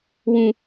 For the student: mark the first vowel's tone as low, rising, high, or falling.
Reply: high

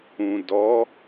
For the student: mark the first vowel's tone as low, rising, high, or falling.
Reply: low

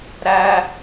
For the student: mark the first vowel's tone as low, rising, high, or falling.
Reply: high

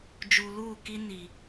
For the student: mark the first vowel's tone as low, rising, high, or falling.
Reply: low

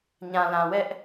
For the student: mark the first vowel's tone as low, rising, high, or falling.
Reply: low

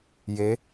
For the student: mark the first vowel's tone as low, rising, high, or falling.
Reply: rising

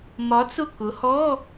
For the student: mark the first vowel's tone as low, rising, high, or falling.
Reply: rising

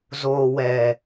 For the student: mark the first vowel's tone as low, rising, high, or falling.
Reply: low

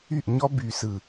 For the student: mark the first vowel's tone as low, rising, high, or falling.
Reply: falling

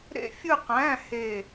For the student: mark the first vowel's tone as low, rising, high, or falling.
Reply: falling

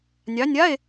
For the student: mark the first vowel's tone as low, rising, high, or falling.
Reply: rising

